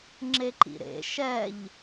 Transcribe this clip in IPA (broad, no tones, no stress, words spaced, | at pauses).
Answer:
ŋ͡ǁeǃḭɾḛ ʃɛʎ